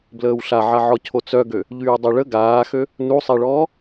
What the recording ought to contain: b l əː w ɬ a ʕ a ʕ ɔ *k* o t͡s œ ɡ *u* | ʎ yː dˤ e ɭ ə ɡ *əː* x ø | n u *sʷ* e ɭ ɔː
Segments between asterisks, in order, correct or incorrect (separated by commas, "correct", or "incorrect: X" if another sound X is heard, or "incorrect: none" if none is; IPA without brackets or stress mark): incorrect: cʰ, incorrect: ø, incorrect: aː, incorrect: sˤ